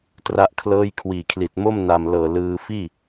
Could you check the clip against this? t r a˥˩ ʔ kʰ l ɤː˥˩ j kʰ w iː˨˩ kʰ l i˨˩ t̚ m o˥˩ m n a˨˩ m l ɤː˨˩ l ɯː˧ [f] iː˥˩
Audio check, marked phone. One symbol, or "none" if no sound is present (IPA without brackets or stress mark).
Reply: f